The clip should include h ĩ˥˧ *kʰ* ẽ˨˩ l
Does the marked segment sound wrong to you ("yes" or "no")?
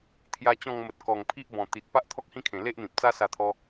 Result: no